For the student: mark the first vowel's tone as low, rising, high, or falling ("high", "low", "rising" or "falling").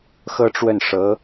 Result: high